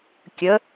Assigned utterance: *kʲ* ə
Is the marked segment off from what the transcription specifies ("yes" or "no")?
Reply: no